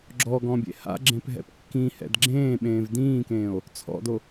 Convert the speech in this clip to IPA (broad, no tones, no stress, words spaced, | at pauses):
ɡ͡ǁɔɡɔ̃bʲḛ ha̰ɡ͡ǁẽpɦɛ̰p kːĩhɛ̰d ɡ͡ǁẽːɓẽːv dĩːkẽːo̯ | t͡sʰɔ̰do